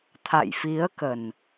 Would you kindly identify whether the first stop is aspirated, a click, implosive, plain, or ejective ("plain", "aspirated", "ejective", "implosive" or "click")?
aspirated